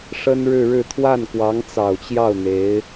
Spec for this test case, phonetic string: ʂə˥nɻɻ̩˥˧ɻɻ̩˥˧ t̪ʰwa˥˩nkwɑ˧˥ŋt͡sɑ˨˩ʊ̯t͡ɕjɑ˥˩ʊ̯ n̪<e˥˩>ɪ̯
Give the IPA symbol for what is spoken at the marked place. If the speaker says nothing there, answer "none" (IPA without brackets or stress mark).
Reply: e˧˥